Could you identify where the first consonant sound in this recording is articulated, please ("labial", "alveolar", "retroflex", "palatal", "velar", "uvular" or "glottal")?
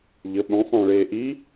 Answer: palatal